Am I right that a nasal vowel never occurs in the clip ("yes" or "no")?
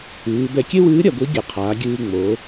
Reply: yes